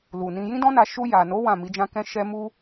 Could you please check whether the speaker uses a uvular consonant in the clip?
no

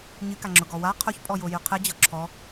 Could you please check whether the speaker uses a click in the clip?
yes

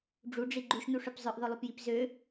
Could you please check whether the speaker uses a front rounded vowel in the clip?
yes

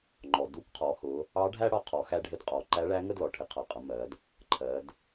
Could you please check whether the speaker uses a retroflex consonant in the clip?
yes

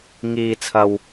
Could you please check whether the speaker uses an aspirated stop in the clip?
yes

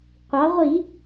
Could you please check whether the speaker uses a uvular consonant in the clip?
yes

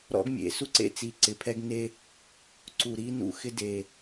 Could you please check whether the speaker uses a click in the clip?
yes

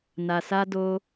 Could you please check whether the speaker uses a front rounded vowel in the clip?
no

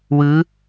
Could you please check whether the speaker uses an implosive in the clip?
no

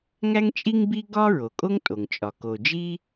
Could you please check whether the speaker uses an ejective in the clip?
yes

